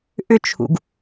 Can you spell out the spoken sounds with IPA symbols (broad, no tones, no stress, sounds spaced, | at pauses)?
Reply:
ʔ ʏ t͡ʃʰ ṵ ɡ